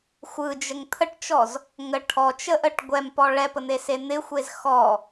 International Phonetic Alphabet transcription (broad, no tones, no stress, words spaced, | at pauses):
xʷɯd͡ʒəŋ t̪ʰəʈt͡ʃɔz | ŋə ʈʰɔt͡ʃəʔəʈ ɡʷɛmpɔ ɭɛpən̪ese n̪ɪxʷez xɔ